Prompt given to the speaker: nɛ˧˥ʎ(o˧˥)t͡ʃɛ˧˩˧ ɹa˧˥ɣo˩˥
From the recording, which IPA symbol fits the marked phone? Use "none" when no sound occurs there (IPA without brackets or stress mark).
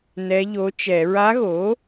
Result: o˧˥